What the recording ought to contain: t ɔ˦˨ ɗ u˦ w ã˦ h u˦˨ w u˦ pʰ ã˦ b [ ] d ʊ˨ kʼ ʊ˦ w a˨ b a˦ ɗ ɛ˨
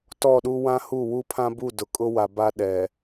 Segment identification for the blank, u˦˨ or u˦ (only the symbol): u˦˨